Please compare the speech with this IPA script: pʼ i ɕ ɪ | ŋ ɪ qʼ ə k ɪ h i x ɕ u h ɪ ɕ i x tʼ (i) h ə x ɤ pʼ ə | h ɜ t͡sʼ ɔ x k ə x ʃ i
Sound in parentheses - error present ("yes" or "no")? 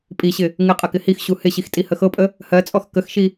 no